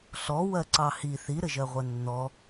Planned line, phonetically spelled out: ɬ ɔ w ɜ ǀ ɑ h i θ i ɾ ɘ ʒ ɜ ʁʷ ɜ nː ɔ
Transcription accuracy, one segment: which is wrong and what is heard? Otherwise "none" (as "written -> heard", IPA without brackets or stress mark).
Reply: none